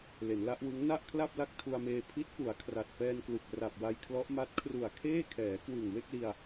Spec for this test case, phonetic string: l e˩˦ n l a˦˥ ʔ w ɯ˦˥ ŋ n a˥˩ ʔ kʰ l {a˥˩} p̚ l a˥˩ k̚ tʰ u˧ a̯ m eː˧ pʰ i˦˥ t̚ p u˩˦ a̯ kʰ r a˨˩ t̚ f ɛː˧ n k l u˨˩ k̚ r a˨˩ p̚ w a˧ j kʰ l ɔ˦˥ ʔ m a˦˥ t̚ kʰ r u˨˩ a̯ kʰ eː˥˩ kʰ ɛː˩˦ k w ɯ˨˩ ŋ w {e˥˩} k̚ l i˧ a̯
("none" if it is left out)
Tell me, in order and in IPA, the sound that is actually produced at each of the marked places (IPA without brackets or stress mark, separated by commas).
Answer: a˥˩, e˥˩